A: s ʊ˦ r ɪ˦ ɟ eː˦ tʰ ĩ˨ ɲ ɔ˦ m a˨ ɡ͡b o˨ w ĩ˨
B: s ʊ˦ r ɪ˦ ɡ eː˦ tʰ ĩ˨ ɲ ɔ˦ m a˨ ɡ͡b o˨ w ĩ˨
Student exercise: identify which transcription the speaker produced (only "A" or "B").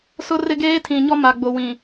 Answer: B